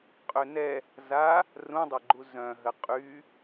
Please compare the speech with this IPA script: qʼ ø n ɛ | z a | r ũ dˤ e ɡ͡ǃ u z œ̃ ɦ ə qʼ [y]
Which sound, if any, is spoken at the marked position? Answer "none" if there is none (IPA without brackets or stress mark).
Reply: y